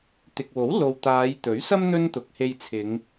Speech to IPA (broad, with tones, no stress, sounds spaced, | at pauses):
t̪ ɪ˨ k̚ w o˨˥ w l o˨ w t̪ aː˨˧ j t̪ ɵ˨˥ ɥ s ɐ˥ m n̪ ɵ˥ n t̪ ʊ˨˥ k̚ h e˧ j t͡sʰ ɪ˨˧ ŋ